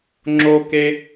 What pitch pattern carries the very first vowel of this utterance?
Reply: high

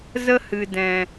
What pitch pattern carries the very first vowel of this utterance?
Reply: high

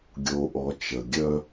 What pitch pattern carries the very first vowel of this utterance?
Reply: low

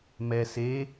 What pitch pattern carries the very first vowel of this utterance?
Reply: low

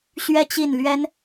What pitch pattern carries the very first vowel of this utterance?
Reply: falling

